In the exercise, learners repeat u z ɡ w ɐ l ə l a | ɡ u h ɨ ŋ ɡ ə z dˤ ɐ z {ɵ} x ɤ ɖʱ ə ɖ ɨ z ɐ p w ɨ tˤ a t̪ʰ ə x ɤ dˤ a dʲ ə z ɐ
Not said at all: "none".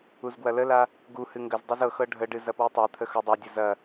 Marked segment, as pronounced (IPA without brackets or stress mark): ɤ